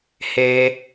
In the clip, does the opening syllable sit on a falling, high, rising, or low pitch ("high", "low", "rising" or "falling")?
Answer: low